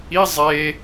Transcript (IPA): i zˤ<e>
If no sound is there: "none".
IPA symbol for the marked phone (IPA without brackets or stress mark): e